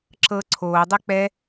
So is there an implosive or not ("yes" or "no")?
no